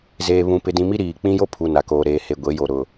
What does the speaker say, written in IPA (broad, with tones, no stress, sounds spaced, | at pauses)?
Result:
z eː˨ β ũ˨ p ɪ˨ d ĩ˨ m i˦ ɾ iː˨ k͡p ĩ˦ j o˦ pʰ u˨ n a˨ k oː˨ ɾ eː˨ h e˨ ɡʷ e˨˦ j o˨ ɾ ʊ˨